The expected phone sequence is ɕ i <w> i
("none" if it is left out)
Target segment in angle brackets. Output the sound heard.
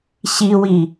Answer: w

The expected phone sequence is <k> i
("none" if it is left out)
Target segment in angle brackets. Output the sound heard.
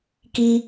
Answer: k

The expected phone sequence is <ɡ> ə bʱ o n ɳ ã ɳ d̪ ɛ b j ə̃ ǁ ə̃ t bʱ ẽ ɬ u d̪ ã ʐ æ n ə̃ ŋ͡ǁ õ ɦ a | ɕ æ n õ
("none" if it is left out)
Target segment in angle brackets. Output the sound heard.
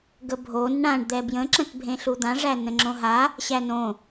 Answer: ɡ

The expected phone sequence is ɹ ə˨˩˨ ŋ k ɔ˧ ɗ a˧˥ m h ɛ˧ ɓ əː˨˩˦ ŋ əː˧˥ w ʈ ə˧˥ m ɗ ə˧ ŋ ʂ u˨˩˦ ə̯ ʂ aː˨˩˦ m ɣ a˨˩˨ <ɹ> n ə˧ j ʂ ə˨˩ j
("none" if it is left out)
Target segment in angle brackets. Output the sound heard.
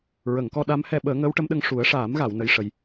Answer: w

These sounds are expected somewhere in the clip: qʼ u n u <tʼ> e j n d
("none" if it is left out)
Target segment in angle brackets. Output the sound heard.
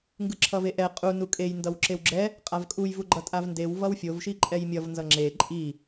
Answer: kʼ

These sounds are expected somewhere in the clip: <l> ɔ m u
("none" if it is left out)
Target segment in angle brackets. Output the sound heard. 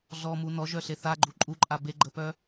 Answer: ɮ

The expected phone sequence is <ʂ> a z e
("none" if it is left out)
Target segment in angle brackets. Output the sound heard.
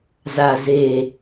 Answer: z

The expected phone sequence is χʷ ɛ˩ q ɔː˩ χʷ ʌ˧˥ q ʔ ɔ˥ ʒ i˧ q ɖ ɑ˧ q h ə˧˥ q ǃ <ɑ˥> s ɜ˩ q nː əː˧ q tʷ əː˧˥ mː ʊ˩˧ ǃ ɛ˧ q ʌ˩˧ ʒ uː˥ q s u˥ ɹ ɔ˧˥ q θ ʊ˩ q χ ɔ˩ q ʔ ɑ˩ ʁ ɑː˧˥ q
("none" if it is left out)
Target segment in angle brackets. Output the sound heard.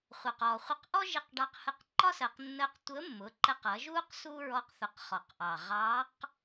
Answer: ɒ˥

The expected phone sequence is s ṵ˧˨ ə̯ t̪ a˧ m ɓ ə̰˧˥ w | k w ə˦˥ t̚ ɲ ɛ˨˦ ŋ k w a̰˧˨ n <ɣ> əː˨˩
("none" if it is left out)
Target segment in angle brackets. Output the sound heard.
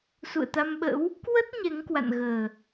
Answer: ɣ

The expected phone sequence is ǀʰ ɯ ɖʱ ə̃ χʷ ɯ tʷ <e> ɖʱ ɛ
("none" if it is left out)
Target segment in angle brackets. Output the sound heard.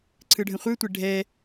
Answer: e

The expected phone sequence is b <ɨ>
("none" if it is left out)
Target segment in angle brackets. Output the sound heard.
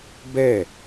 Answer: ɛ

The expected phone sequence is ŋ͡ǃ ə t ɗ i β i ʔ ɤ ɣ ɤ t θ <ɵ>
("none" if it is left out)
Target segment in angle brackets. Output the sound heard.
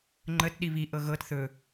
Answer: ɵ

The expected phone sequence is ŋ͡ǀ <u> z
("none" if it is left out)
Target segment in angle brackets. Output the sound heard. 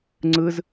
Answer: ɯ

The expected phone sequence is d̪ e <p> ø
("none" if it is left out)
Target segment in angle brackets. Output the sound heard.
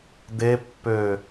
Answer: pː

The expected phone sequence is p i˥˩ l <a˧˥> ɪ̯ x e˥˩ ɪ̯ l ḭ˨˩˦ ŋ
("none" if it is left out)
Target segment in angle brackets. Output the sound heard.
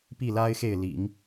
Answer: a˥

